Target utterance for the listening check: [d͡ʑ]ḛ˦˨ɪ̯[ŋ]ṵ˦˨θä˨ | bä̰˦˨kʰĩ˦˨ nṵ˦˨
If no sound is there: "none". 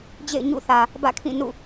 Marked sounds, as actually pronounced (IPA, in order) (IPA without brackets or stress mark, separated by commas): d͡ʑ, ɲ